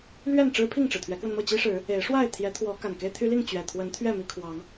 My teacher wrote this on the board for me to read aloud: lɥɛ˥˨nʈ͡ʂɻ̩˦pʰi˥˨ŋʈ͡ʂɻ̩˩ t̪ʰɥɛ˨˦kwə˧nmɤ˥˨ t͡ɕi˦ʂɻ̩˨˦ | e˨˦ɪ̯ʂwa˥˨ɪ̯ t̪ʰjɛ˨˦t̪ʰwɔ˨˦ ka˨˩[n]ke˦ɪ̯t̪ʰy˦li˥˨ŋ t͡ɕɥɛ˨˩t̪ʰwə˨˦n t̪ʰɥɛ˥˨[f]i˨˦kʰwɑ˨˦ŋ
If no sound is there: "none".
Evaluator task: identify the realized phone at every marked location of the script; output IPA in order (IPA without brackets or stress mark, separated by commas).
n, m